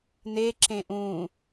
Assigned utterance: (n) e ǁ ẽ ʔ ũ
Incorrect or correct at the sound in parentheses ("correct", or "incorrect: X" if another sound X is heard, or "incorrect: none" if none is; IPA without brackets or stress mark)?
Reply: correct